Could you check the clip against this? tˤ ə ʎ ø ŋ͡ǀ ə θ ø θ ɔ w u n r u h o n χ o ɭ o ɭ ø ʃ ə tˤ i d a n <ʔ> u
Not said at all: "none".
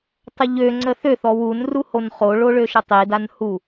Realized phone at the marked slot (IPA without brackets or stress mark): h